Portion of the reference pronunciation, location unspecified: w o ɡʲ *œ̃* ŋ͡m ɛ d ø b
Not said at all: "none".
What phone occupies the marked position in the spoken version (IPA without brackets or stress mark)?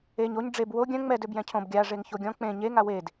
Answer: œ̃